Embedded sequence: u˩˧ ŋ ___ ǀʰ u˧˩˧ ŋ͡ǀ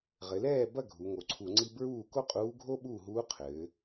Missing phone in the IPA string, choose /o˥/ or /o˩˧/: o˩˧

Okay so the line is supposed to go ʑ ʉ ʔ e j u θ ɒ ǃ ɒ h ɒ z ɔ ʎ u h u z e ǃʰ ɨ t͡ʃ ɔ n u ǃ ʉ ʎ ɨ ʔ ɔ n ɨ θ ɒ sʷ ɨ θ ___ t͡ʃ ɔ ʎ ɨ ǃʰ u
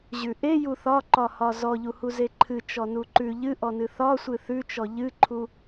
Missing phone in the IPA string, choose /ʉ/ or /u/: ʉ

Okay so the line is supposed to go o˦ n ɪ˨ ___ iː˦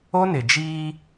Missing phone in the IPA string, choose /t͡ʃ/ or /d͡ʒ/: d͡ʒ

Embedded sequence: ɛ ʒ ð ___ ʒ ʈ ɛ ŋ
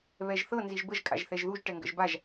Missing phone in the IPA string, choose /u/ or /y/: u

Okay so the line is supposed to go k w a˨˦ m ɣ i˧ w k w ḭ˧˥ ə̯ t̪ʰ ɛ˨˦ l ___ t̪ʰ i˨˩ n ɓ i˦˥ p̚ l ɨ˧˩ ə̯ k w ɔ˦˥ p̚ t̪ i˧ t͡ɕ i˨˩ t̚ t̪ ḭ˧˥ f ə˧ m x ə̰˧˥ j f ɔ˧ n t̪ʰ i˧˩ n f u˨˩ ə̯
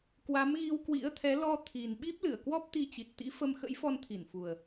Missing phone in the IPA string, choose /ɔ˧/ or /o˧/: ɔ˧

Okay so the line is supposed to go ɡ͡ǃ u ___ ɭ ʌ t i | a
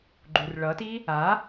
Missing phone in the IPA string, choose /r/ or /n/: r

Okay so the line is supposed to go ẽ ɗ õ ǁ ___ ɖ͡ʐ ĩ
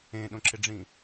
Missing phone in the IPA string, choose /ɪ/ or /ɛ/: ɪ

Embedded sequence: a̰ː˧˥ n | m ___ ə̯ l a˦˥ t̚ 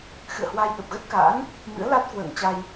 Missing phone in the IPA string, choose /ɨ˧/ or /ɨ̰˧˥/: ɨ̰˧˥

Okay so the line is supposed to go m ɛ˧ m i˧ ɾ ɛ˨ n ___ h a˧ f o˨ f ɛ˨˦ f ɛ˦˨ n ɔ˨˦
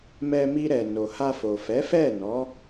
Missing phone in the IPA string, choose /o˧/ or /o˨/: o˨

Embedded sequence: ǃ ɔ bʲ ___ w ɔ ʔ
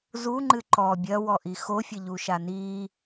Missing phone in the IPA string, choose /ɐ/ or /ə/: ɐ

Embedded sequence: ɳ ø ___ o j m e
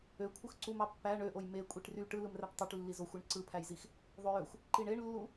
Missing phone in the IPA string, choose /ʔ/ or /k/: ʔ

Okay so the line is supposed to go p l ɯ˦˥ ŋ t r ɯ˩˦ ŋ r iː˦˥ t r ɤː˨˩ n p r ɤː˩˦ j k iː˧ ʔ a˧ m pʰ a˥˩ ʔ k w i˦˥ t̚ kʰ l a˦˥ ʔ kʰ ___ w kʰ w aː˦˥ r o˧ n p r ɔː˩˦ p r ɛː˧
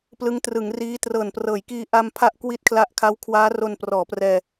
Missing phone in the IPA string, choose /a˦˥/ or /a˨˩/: a˦˥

